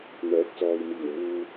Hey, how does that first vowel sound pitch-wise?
rising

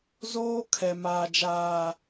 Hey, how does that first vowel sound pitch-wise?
high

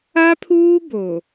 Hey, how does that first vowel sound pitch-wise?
high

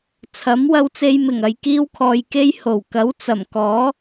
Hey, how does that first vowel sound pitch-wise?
rising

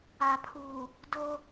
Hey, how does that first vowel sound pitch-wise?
low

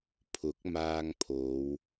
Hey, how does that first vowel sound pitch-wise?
rising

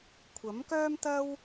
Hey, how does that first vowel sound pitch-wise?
rising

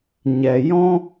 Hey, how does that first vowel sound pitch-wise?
low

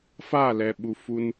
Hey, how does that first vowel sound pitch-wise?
falling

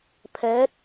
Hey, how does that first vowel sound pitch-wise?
rising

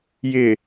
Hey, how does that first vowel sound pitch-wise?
low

